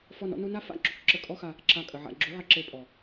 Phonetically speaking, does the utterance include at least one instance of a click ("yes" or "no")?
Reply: yes